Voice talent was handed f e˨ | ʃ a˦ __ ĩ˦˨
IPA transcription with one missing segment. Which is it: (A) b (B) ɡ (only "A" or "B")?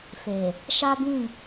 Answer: A